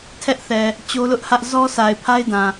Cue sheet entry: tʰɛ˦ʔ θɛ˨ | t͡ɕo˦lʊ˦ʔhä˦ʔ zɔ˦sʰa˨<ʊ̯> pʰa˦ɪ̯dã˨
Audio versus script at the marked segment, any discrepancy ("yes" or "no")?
yes